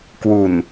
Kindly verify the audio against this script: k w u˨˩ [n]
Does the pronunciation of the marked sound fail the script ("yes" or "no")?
no